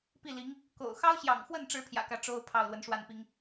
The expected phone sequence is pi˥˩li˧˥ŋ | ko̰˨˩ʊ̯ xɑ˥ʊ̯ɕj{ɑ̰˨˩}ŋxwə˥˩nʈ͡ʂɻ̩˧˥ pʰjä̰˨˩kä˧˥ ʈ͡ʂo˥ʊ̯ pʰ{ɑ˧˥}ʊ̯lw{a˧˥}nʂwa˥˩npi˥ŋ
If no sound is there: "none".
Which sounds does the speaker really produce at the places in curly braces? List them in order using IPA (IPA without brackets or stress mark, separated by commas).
ɑ̰˨˩, ɑ˥˩, ə˧˥